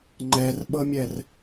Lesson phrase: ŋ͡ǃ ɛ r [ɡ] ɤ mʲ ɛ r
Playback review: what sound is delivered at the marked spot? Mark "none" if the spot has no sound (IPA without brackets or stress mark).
ɓ